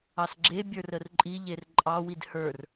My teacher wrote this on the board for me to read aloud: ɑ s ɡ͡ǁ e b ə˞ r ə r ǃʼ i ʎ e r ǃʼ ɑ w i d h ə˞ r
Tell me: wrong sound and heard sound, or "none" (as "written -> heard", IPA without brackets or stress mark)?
b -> bʲ